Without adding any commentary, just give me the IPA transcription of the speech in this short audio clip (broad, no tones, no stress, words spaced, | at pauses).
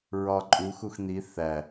ɹɒǃʼu xuxn̪i θæ